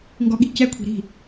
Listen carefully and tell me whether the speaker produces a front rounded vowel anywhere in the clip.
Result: no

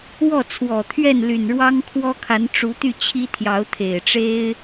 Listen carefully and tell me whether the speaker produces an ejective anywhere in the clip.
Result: no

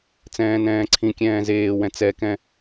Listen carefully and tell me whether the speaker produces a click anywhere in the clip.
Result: yes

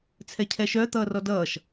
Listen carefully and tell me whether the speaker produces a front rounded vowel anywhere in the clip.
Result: yes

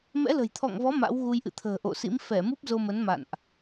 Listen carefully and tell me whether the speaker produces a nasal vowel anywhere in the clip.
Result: no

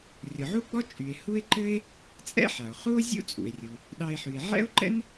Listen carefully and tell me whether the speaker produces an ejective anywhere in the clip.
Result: yes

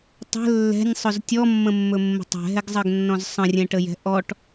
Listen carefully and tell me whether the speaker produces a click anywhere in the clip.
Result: no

